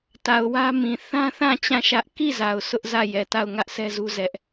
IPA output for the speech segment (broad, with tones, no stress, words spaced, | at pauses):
ta˨ʊ̯wä˦mĩ˨ θã˦θã˦˨ t͡ɕã˦˨ʃä˦ʔ ki˦˨ za˨ʊ̯sʊ˦ʔzä˦˨ jɛ˨ta˦˨ʊ̯ ŋä˦ʔsɛ˦zu˦ zɛ˦ʔ